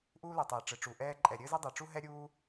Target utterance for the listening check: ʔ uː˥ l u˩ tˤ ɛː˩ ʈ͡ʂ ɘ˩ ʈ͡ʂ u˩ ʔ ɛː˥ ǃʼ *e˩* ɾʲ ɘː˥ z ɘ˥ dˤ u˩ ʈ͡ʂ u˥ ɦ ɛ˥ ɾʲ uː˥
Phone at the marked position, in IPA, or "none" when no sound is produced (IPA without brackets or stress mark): ɛ˩